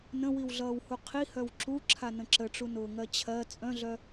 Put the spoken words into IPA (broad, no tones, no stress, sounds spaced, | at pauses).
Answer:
n ə̃ w i w ɮ ʌː w h u qʰ i h œ w ǁ u ǁʰ a n ə̃ ǁ ə ʈ͡ʂ u n ʊː ŋ ɜ t͡ɕʰ ɜ t͡sʼ œ̃ ɮ œ